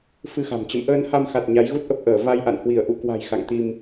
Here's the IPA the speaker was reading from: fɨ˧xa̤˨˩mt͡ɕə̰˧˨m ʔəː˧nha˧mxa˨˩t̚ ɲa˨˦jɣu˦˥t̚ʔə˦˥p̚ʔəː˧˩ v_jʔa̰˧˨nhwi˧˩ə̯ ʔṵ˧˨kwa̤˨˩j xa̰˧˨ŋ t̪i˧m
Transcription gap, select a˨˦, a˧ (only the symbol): a˧